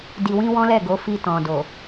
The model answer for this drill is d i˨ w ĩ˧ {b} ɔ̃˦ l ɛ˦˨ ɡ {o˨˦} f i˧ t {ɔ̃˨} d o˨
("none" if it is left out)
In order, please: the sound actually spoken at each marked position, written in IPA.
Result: w, o˨˦, ɔ̃˨

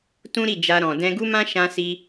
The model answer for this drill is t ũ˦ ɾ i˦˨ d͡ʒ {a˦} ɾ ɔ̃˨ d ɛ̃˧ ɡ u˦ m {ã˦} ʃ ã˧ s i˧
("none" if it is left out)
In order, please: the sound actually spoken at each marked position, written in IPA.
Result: a˧, ã˦

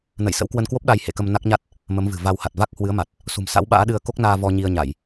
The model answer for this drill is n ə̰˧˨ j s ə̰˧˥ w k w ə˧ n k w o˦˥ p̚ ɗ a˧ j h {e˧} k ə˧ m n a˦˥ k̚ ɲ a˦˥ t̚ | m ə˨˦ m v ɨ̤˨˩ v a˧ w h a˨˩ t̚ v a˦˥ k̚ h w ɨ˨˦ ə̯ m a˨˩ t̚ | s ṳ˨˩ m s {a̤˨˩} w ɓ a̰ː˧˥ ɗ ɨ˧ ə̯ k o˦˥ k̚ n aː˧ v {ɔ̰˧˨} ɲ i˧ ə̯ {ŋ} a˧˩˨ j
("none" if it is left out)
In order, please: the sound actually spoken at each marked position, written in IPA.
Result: ḛ˧˨, a̰˧˥, ɔ˧, ɲ

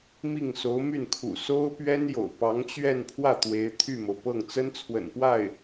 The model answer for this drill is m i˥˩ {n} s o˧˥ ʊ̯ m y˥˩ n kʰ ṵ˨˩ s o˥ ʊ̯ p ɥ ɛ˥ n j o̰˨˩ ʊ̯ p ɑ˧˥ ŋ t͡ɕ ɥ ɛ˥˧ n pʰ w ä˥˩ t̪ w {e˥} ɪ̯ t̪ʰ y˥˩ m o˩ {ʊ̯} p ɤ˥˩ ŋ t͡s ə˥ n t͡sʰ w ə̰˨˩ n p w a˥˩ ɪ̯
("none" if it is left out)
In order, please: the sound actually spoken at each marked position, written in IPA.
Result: ŋ, e˧˥, ʊ̯

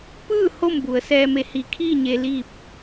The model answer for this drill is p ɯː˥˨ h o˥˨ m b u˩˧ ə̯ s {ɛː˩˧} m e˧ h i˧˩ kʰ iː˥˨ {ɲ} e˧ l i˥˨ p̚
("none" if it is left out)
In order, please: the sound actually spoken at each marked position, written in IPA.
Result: ɛː˧, ɲ

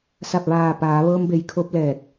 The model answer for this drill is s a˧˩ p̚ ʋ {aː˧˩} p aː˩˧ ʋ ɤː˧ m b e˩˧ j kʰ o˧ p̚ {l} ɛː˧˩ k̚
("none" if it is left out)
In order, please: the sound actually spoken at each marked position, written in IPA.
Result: aː˧˩, l

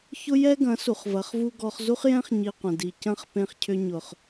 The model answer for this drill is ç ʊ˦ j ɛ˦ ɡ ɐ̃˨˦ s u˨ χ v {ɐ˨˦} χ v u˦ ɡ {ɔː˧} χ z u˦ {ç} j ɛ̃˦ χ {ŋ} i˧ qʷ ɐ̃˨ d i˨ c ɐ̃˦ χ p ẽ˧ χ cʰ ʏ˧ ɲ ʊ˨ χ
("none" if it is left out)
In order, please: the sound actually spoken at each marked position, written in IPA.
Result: ɐ˨˦, ɔ˧, χ, ɲ

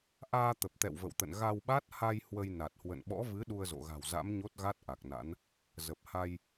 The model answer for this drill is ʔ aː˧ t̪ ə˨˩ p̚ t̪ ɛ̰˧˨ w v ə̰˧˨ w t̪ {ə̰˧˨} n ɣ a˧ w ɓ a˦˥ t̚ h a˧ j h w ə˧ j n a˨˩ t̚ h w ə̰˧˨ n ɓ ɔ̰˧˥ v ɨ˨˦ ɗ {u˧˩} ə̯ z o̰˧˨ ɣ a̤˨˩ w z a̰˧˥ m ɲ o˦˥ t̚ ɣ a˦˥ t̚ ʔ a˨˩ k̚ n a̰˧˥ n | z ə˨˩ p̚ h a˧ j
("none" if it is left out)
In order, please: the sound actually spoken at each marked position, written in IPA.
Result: ə̰˧˨, u˧

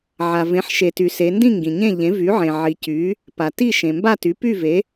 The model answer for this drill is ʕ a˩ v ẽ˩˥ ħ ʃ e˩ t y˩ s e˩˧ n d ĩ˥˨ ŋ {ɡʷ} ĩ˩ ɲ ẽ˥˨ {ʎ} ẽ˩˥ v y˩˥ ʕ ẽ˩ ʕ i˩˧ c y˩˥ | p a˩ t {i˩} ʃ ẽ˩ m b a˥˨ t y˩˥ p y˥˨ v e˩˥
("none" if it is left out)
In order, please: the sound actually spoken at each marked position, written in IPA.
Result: ɡ, ʎ, i˥˨

